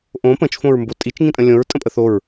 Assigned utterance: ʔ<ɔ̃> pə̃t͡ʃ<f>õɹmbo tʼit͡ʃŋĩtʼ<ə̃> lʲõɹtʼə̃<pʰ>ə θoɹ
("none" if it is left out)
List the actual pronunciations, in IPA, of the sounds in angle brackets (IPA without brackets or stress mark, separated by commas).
õ, f, ə̃, pʼ